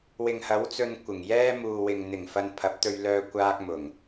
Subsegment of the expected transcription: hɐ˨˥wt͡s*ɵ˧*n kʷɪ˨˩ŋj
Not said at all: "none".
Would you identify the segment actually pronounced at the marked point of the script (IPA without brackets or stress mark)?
ɵ˧